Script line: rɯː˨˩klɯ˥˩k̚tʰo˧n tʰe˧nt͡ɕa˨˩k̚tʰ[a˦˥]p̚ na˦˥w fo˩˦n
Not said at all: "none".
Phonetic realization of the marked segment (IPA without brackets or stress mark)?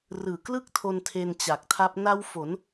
a˦˥